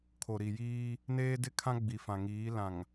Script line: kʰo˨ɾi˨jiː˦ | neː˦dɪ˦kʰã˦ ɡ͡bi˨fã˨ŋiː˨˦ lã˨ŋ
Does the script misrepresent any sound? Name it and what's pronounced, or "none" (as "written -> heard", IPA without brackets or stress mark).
none